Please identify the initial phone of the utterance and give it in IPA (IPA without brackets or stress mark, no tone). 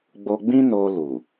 ɡ͡b